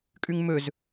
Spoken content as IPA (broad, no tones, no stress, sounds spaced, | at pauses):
kʼ ʉ ŋ m ɵ z